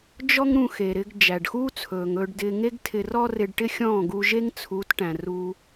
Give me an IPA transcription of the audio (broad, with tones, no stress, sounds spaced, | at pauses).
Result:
d͡ʒ ɔ˦ ŋ ɾ ũ˧ x e˨ ɾ ɪ˧ ɡ d͡ʒ æ˨ ɖ x uː˦ t͡sʰ ɵː˨ ŋ ɵː˧ ɖ d ɪː˧ ŋ e˦ ɡ tʰ ɪ˧ r ɔ˦ r ɪ˧ ɖ ʈ ɪ˦ xʲ ɔ̃ː˦˨ ɡ u˧ ʒ e˦ ŋ t͡sʰ u˨˦ t ʈ æ̃˨ r uː˧